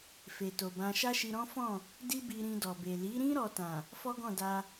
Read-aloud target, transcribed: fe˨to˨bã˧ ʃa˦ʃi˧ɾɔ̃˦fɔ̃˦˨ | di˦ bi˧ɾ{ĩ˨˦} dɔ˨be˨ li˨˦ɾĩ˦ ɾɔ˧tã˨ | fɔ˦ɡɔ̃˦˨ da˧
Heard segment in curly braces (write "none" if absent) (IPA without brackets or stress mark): ĩ˧